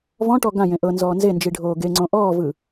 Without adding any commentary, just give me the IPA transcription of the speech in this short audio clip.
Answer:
vɔ̃ʈɔ ɡãjẽ ʔɤ nzɔːnzend͡ʒi ɖʱoːɡeŋ͡ǀõ ʔɔːvɯ

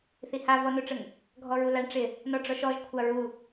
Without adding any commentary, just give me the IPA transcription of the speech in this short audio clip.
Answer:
θiha vɔnoʈ͡ʂəŋ | ɡʱɔɹulaɳ ʈ͡ʂɪ | nɔɖ͡ʐɔʃɔʒ kʷʰaɹu

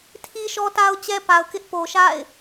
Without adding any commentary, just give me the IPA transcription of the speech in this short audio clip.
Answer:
tʰi˦ʃɔ˦ta˦ʊ̯t͡ɕɛ˦ pa˨ʊ̯kɪ˦ʔ po˨ʃa̰˦˨ɪ̯

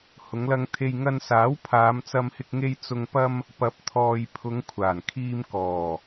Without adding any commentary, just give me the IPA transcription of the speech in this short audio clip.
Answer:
hʊ˨˧ŋlɐ˧ŋt̪ʰe˧j ŋɐ˧nsaː˨˥w pʰaː˨˧mt͡sɐ˧mhɪ˧k̚ŋe˧j t͡sʊ˨ŋpɐ˧m | pɐ˨˥p̚t̪ʰɔː˨j pʰʊ˨˧ŋkʷʰaː˨˩nkʰiː˧m kɔː˨˩

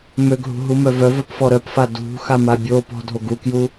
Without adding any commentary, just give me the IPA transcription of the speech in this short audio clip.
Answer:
møɡɦṳ ɦumœvœvœp fɔɾœpfa dṳ xamabʲopɔ̤ dʱoɡukju

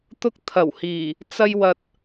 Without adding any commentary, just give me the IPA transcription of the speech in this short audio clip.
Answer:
t̪ʊ˥k̚t̪ʰɐ˨˩whiː˨˩ | t͡sɐ˥jwɐ˧t̚

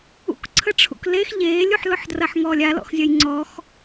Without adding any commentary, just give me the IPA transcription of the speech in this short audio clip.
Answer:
ṵk ǀʰəʈ͡ʂʰṵklex ʎeːlʲuħlʊħdrɐħ ŋɔːlʲalɔ̰xzʲɐj ŋ͡ǀɔx

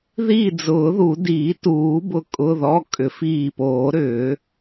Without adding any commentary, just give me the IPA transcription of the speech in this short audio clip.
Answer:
ði˧˩ d͡zʊː˨˩˦ðu˨˩˦ diː˨˩˦tuː˨˩˦ bʊ˧˩ kʼʊ˩˧˩ðɔ˩˧˩ kʼʏ˨˩˦fiː˧˩poː˨˩˦ ɾʏː˨˩˦

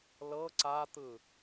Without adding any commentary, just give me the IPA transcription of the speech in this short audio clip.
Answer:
lɤ ǀat̪ɯ

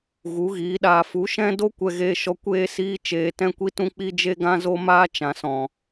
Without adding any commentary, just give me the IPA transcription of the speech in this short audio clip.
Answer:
ɣu˨˦ɣiː˨˦ɗaː˧ fu˨˦ʃɛ̃˦do˦ kʷɛ˧ɣeː˧ʃɔ˧ kʷeː˦siː˦t͡ʃeː˧ tɛ̃˦kʷi˦ tũ˦k͡pi˦ d͡ʒe˦ɡã˦ zo˦maː˦ t͡ʃã˨sɔ̃˨

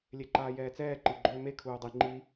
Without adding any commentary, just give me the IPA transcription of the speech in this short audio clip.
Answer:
lʲeǃaːjɛːt͡sɛː ǃiɡ͡ǃøːme kʰuːdˤi ŋ͡ǃi

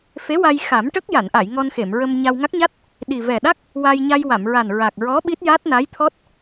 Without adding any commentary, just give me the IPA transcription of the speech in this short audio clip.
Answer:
fe˧˥wa˧j xa˨˩˦mʈə˦˥k̚ ja˨˩˨nʔa˨˩˨j ŋɔ˧nxe˨˩˨mɹə˧mɲa˧w ŋa˦˥k̚ ɲa˦˥t̚ | ɗi˨˩ vɛ˨˩ɗa˦˥k̚ | wa˧j ɲa˧jwa˨˩˨mɹa˨˩n ɹa˨˩k̚ɹɔ˧˥ ɓi˦˥t̚ja˦˥t̚na˧˥jt̪ʰɔ˦˥t̚

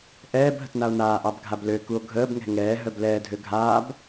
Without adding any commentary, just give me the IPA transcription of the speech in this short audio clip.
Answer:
ʔɛːb ɦə̤tnao̯naːʔɑb ɡʱabløkuo̯ ɡʱəːbŋɛ̤ ŋɛː ɦœblɛːdʱø ɡʱaːb

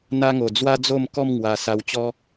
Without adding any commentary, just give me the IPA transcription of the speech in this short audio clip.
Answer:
n̪a˧ŋo˨˩ d͡zwa˦d͡zo˥˧mkɔ˥˧m ŋwa˧ sa˧wt͡ɕɔ˦

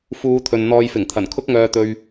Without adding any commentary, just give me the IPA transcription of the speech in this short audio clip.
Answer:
fuː˨˧t̪ʰɵ˨n n̪ɔː˨jfɪ˨˩ŋt̪ʰɐ˨˩n kʰʊ˧k̚ŋœː˨t̪ɵ˨ɥ

